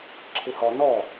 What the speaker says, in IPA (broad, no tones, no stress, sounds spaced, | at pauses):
ǁʰ ɪ h ɔ n ɔ